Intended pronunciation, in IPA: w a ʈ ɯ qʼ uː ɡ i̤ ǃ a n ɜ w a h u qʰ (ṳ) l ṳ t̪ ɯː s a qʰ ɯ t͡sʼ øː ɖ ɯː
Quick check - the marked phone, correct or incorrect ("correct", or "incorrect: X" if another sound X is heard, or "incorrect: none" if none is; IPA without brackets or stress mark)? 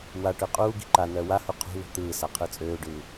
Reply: correct